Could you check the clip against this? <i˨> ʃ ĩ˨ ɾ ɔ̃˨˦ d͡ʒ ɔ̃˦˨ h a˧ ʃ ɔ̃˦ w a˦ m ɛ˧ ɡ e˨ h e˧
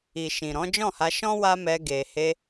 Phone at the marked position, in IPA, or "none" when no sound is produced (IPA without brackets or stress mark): i˨